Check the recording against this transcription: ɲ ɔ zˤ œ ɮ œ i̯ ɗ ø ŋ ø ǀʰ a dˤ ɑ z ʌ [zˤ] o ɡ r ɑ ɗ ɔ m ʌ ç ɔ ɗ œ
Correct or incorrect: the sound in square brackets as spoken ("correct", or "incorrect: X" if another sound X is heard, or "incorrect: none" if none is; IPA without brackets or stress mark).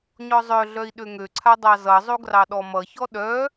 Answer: correct